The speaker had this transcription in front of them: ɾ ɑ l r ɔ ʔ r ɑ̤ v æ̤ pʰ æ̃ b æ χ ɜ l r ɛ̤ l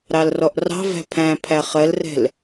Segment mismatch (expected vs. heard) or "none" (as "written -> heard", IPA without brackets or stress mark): b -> pʰ